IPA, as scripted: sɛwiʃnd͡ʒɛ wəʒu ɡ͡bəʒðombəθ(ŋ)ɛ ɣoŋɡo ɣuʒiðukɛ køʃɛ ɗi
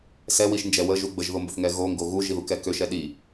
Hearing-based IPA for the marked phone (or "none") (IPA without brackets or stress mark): ŋ